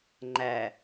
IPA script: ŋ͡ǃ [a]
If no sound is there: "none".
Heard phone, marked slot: æ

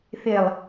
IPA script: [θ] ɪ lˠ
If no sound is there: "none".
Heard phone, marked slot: θ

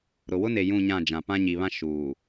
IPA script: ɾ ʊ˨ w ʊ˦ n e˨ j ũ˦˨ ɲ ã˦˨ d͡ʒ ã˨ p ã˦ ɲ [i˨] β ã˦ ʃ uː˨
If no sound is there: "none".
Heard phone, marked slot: i˨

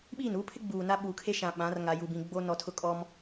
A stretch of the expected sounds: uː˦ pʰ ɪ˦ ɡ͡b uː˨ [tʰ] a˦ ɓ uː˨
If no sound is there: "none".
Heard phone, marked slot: n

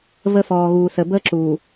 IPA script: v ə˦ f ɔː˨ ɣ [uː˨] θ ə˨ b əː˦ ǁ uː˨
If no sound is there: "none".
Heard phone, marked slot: uː˨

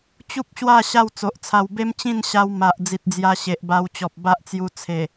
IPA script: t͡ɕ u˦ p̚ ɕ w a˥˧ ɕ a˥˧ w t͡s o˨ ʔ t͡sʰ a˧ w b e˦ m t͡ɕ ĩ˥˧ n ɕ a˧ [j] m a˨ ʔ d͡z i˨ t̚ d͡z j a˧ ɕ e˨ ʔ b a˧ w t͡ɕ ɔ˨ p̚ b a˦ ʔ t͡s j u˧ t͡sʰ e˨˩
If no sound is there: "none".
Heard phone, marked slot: w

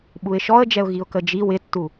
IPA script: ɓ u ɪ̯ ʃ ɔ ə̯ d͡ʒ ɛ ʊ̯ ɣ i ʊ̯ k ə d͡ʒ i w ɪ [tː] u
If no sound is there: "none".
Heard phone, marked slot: tː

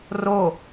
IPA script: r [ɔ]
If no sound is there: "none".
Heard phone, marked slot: o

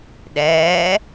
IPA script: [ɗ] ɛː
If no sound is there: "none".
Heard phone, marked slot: ɗ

